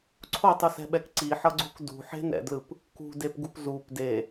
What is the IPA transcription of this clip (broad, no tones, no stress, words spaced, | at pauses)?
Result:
ǀʰotˤusɛ̤ɓɛk ǀiħʌɡ͡ǀuk dṳħe̤nɛ̰dlɯp | kṳ depɡupzup de